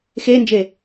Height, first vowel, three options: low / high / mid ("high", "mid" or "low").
mid